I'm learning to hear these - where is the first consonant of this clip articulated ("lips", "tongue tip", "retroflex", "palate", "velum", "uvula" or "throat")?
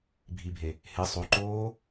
lips